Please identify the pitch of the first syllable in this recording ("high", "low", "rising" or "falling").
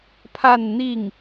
falling